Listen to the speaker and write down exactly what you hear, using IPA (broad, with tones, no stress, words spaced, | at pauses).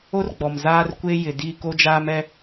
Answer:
o˦rɡ͡bɔ˨mzaː˦r kʷe˦jɪ˨ di˦˨ko˦d͡ʒaː˦mɛ˦